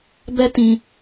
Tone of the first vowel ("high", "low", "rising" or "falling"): high